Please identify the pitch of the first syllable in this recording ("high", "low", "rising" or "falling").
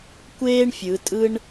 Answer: high